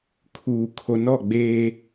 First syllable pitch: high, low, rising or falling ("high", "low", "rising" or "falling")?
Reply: low